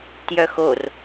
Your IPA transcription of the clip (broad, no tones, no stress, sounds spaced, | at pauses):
t j œ x o r